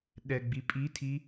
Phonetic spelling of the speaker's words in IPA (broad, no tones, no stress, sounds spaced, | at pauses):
ɗ ɛ ɡ͡b i pʼ i tʰ i